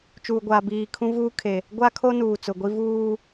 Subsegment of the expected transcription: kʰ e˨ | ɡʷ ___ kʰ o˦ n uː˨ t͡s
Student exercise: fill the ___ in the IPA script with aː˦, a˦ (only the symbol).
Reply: a˦